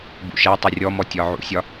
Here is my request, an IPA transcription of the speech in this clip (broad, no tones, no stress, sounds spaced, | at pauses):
b ṵ ʃ æ tˤ ə rʲ ɔ m ɔ tʲ ɒ ʕ ṵ sʲ ɒ